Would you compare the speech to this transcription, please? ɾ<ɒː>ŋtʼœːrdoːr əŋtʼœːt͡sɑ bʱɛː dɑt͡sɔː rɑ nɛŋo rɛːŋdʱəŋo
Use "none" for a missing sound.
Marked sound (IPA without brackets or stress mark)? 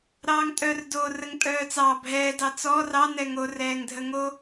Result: ɑː